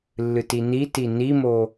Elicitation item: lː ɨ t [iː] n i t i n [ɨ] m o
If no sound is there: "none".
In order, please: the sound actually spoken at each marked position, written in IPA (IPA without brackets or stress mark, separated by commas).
i, i